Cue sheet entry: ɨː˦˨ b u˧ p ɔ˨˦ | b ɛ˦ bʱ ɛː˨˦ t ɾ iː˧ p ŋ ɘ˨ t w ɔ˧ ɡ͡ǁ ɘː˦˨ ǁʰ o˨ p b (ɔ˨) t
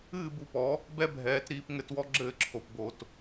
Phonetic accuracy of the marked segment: incorrect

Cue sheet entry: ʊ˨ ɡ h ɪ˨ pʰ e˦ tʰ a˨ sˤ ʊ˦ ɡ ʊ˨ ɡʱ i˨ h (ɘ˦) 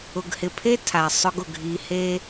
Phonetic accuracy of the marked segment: incorrect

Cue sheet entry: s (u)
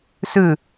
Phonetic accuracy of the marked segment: incorrect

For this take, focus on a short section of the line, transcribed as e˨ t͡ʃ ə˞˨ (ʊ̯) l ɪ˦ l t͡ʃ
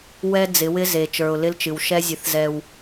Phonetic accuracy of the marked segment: correct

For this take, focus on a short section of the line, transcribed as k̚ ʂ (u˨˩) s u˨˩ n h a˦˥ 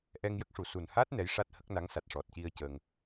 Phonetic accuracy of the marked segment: correct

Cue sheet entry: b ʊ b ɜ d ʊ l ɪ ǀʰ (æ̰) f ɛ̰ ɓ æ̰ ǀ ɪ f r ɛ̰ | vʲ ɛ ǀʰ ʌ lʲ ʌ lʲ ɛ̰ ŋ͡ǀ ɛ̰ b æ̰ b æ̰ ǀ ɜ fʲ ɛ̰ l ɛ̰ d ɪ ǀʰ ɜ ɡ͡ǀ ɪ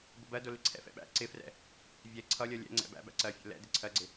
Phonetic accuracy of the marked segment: incorrect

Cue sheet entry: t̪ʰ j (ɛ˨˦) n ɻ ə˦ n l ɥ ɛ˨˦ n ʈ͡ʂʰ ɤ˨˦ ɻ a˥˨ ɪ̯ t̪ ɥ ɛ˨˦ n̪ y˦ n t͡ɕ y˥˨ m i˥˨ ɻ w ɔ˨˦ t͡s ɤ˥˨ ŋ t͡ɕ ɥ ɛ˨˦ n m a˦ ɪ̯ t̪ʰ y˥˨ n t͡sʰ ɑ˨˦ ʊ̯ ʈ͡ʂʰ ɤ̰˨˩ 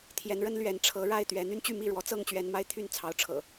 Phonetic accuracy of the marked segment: correct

